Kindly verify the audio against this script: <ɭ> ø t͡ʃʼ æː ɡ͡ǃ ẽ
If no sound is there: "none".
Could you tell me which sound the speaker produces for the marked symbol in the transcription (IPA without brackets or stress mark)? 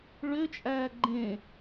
ɭ